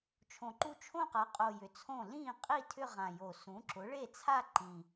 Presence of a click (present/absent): present